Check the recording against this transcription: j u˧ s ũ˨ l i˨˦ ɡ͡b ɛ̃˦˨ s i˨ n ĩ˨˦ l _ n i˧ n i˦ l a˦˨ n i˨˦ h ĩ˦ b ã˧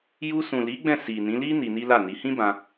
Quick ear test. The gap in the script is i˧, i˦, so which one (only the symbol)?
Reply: i˦